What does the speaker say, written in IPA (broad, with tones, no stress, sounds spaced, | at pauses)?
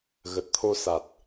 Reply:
ɣ ə˨˩ t̚ t̪ʰ o˧ s a˨˩ t̚